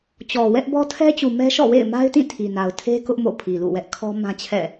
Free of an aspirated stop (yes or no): no